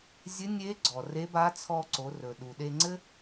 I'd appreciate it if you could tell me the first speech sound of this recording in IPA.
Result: zʲ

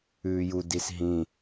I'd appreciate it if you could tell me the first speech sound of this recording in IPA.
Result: ʉː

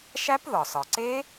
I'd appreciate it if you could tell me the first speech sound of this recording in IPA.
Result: ʃ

